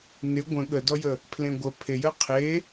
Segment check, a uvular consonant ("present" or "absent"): present